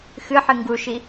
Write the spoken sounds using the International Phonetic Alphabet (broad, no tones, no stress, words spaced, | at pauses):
xɨħɨ ŋɡuʃi